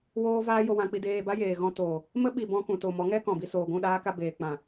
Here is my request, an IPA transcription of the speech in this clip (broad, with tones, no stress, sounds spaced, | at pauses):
w oː˦ v aː˦ j o˧ w ã˧ k͡p i˧ d eː˧ b a˦ j eː˨ ɣ ɔ̃˧ t o˨ | m ə˦ ɓ i˧ b ɔ̃˧ k ũ˨ t o˨ m ɔ˨˦ ŋ ɛ˦ k ɔ̃˨ b i˧ s oː˨ ɡʷ ũ˦˨ ɗ aː˦ k a˧ b eː˨ k͡p ã˨